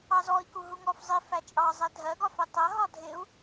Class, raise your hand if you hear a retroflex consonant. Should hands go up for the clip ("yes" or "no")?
no